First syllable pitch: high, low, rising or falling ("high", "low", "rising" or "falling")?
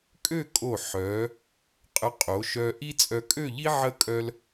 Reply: falling